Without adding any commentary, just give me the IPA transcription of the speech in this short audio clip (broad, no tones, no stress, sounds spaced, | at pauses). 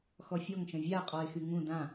x ɔ fʲ ɔ ŋ ʃ ə̃ vʲ a qʼ ɔ ɪ̯ x y ŋ ũ d ã